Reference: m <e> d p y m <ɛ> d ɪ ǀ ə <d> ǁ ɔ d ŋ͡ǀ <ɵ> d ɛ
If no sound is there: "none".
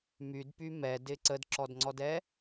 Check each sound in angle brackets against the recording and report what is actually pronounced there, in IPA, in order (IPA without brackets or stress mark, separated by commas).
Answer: y, ɛ, d, ɔ